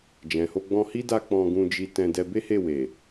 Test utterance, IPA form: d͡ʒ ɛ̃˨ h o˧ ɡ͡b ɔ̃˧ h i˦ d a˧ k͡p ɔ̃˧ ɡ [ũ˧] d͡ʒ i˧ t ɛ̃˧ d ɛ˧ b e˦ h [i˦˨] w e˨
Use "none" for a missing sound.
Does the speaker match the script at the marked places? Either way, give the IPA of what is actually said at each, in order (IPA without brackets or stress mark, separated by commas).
ũ˧, e˦˨